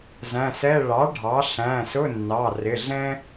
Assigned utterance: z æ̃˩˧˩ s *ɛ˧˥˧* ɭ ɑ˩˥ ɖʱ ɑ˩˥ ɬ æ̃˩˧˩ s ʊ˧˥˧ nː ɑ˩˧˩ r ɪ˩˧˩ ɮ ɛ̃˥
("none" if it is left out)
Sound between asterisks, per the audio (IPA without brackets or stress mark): ɛ˧˥˧